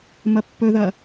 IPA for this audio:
m ɐ pː ɵ ð ɐ

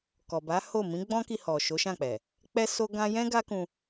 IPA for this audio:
k ɔ˨ b a˨˦ h o˦˨ m ĩ˨˦ ɡ͡b ɔ̃˦ k i˧ h ɔ˨ ʃ o˨˦ ʃ ã˦˨ k͡p ɛ˨ | k͡p ɛ˦ s o˦ ɡ ã˦ j ɛ̃˦ ɡ a˦ k ũ˧

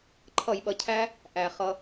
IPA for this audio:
ǃʰ ʌ˧˩˧ j ɓ ʌ˩ cʰ æ˦˥ | ʔ æ˩ χ ʌ˩

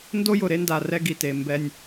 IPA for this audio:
n d o˦ j ʊ˨ ɾ e˦ n d a˨ r ɛ˦ ɡ i˨ t e˨ m b ɛ˦ nʲ

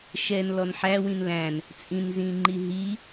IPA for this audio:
ʃ ɛ n l ɔ n ħ æ w ĩ n l æ̃ n | t͡sʼ ĩ n z ĩ ŋ͡ǃ i ɦ i

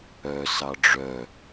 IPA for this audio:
œ s ɑ ɖ͡ʐ œ

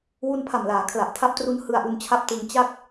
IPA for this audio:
w u˧ n pʰ a˨˩ m l aː˩˦ kʰ l a˨˩ ʔ tʰ a˦˥ p̚ t r u˦˥ n h ɯ˧ a̯ ʔ u˧ n t͡ɕʰ a˦˥ p̚ t ɯ˧ ŋ t͡ɕ a˦˥ k̚

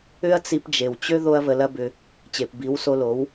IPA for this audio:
ʏ˦ ɐ̯ t͡s i˧ p d͡ʒ e˨ w t͡ɕ ø˦ ð o˦ ɐ̯ v ə˧ l ɐ˦ b ʏ˧ | t͡ɕ e˨ p b i˨˦ w s o˧ l o˨˦ w

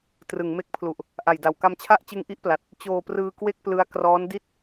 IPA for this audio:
t r ɯ˩˦ ŋ m e˦˥ k̚ pʰ l u˨˩ ʔ | ʔ a˨˩ j d a˨˩ w k a˧ m t͡ɕʰ a˥˩ ʔ t͡ɕ ɯ˦˥ ŋ ʔ i˦˥ ʔ p l a˨˩ t̚ | t͡ɕ oː˧ p r ɯː˧ k w e˥˩ k̚ p l ɯ˦˥ a̯ k r ɔː˦˥ n d i˥˩ t̚

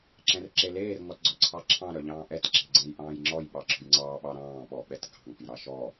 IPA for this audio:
ǁ ɛ̃ r ǁ e l eː r ŋ ɔ t ɡ͡ǀ ɔ ǀʰ ɑ ǁʰ ɑ̃ ɾ œ ʎ ɑ̃ː ʔ ɛ t ǁ e̤ ɡ͡ǀ ɛ̃ j ʔ ɑ̃ː j ŋ͡ǁ ɔ j ɓ ɑ ǁ ɔ̤ j ŋ͡ǀ ɑː ɓ ɑ ɾ ɑ̃ː ɓ ɔ ɓ ɛ t ɡ ɑ̤ ŋ ɔ̤ j ɾ ɑ ʃ ɔ

